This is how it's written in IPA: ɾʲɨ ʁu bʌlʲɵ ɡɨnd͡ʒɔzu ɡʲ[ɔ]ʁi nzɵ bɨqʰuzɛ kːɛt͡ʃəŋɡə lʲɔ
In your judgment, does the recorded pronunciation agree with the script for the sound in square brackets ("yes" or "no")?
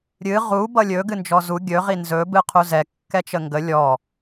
no